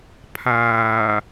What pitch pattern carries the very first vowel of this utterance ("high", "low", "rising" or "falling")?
low